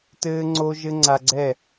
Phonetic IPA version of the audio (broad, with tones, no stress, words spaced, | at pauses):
tɘː˧ŋ͡ǀo˧ʒɘ˧ ŋ͡ǀa˧ɡ͡ǀɛ˦˨